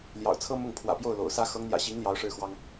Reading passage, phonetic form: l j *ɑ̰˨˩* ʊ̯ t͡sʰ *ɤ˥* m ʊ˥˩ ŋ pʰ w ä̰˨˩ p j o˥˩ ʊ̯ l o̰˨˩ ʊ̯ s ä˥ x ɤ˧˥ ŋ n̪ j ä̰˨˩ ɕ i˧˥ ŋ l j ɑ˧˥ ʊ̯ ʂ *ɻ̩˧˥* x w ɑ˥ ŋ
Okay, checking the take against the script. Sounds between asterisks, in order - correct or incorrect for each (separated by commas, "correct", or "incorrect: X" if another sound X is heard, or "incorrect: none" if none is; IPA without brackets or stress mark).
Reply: correct, correct, incorrect: ɻ̩˥˩